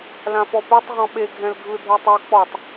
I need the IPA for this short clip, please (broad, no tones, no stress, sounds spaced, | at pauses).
l ã f ɔ p ɛ tˤ ʁ ɔ̃ ɓ e ɡʱ ɛ̃ l ɡʱ ɯ dʱ e tˤ u k͡p ɔ tˤ